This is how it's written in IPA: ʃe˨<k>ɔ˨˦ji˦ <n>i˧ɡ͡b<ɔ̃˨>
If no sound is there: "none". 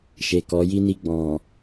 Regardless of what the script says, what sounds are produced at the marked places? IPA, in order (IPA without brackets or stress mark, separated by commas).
k, n, ɔ̃˨